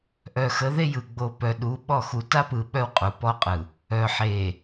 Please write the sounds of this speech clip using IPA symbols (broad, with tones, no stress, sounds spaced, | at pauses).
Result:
ʔ œ˨ x ə˨˦ ð e˦ j ɯ˨ ɡ͡b o˨ p œ˨ ɗ u˨˦ ɓ ɔ˦˨ x u˨ t a˦ p ɯ˨ ɓ œ˦ w qʼ u˨ p ɔ˦ qʼ ɯ˨ | œ˨ ħ e˨